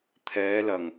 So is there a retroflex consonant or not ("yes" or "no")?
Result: no